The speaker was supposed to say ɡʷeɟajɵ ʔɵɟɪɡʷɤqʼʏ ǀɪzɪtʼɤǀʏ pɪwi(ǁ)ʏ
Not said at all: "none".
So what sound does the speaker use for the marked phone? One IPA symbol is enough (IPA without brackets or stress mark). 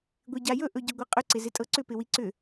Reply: ǀ